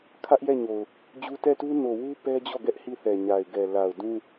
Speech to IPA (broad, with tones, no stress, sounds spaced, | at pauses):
kʰ ä˦ ʔ j ɛ˦˨ ɲ o˨ ʊ̯ | d͡ʑ u˦ t ɛ˦˨ t u˦ n o˨ w u˦ p ɛ˦ d͡ʑ ɔ˦˨ ɡ ɛ˦ ʔ h i˦˨ θ ɛ˨ ɲ a˨ ɪ̯ ɡ ɛ˨ l a˨ ʊ̯ d ũ˦